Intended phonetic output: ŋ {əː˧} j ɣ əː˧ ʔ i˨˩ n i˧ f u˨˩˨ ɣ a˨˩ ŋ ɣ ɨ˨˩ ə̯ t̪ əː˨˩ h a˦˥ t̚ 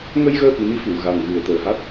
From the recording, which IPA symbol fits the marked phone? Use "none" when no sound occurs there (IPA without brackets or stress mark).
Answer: ə˧